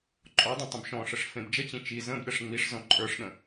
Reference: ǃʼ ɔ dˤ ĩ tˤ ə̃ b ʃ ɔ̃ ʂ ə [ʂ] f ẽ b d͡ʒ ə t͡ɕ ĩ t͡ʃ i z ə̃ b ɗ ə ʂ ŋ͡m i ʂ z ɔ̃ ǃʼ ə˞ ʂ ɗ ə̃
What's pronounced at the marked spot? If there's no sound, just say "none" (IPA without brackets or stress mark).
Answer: ʂ